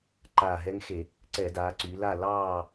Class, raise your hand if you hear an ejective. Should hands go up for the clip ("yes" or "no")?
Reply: no